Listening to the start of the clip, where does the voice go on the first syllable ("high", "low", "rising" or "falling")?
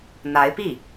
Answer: rising